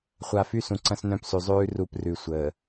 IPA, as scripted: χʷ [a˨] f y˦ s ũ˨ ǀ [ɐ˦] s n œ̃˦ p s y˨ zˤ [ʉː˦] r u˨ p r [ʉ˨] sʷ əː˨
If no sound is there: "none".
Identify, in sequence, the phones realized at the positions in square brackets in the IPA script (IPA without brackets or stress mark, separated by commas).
a˨, ɐ̃˦, ʉː˦, ʉ˨